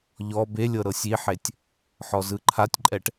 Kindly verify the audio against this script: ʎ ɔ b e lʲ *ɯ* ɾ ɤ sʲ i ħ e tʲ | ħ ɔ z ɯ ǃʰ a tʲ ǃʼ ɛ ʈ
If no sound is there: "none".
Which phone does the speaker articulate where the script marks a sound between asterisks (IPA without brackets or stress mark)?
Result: ɤ